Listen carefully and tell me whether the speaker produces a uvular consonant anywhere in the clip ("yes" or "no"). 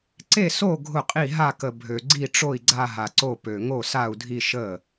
yes